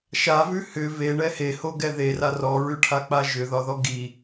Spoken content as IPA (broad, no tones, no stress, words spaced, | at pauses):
ʃavʉ hʏ veɳɛ hehoɡɛ ðera rɔɹʉʈʰak͡pa ʒʏðɒðɔ ɡi